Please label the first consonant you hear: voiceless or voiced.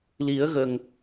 voiced